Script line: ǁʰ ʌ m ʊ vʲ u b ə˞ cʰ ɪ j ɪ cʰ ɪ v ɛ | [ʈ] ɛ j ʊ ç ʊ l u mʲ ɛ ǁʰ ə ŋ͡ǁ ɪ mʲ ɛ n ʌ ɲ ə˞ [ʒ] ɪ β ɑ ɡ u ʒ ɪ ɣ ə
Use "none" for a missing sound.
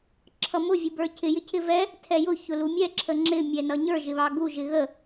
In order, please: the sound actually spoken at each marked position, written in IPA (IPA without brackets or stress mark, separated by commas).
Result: tʰ, ʒ